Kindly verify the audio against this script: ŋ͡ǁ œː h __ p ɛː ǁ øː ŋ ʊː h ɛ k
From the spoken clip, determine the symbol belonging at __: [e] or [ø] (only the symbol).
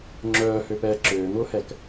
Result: ø